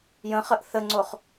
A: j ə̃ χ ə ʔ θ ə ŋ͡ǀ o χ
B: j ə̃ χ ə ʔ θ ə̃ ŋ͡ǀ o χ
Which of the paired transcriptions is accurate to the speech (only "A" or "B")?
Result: A